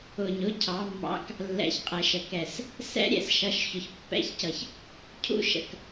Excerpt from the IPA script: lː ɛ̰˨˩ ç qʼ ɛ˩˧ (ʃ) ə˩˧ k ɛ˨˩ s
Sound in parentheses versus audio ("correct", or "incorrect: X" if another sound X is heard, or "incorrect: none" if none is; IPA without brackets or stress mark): correct